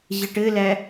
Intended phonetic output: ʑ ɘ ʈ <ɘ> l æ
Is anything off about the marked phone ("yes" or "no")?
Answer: no